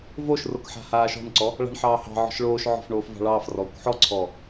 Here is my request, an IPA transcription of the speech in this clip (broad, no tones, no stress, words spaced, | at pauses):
voʃrok ħa̤haːʃɔ̤nǀɔ | ɭa̤ɳħɑːhɑ̤ʕɔ̤ʃ ɭoːʃʕɔ̤f ɳoːfvɑ̤ɭɑːfrɔːkʷ ħɔǀʰɔː